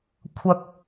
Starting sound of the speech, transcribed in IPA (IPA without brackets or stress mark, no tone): kʷʰ